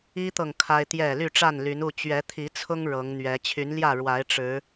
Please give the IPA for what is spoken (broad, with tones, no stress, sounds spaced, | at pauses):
i˦ t̪ ɤ˨ ŋ kʰ a˦ ɪ̯ t̪ j ɛ˥˨ l y˥˨ ʈ͡ʂ a˥˨ n l y˨˦ n u˥˨ t͡ɕ ɥ ɛ˨˦ t̪ʰ i˨˦ t͡sʰ ʊ˦ ŋ ɻ ɤ˨˦ ŋ n̪ ɥ ɛ˨˦ t͡ɕʰ y˨˦ n l j ä˥˨ ɻ w a˨˦ ɪ̯ ʈ͡ʂ ɻ̩˨˦